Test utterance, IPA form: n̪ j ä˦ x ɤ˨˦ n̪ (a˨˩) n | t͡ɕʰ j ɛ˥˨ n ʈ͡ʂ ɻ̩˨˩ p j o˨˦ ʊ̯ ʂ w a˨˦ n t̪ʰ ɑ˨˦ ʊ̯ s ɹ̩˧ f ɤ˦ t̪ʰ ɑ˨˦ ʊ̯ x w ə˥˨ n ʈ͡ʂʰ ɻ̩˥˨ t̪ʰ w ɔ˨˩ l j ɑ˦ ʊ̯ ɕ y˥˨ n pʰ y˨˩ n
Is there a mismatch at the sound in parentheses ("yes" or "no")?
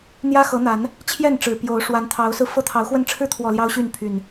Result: yes